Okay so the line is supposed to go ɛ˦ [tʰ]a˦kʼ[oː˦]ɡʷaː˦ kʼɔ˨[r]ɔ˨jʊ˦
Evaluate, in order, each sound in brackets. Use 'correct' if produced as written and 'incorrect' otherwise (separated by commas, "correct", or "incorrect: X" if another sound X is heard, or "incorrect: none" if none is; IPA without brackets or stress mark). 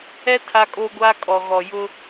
correct, correct, incorrect: ɣ